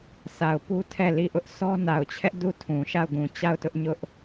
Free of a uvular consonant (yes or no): yes